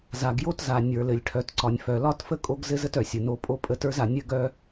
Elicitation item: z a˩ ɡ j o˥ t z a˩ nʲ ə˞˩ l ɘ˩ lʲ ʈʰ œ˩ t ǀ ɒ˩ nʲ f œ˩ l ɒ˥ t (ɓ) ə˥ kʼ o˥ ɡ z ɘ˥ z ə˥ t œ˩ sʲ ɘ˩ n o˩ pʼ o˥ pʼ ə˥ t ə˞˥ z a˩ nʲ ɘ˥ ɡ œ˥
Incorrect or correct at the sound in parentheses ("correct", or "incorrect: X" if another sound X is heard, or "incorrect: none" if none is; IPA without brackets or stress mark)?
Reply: incorrect: f